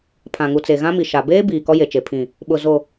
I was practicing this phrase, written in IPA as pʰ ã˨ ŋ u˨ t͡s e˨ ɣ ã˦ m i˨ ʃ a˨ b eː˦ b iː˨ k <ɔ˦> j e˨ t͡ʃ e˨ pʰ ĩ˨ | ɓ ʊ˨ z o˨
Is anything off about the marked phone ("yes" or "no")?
no